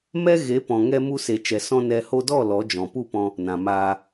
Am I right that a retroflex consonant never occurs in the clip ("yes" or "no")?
yes